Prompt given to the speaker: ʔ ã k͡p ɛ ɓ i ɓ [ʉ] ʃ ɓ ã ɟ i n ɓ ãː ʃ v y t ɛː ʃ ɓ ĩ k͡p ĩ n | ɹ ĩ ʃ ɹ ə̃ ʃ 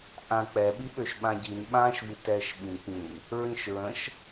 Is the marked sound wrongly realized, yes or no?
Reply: yes